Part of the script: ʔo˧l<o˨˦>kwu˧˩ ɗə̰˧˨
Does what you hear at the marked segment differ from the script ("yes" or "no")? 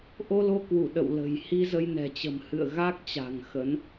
yes